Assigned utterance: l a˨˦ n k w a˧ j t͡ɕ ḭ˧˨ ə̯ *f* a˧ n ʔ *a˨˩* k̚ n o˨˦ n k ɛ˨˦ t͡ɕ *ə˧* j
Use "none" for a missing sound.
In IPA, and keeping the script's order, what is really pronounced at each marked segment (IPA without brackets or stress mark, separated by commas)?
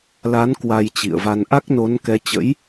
v, a˦˥, ə̰˧˥